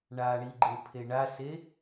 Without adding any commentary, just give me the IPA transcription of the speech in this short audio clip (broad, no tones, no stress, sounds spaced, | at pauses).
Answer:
ɳ a ɳ i ɡ͡ǃ e pʰ e ɳ a s e